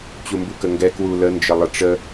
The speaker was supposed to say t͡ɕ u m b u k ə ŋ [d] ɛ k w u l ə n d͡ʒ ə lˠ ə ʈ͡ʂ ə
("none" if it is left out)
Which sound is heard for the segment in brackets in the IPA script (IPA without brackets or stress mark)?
ɡ